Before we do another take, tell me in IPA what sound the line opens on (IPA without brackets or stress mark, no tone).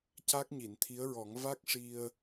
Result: c